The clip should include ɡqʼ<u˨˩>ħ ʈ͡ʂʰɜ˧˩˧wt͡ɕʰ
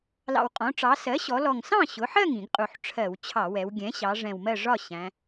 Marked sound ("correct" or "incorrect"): correct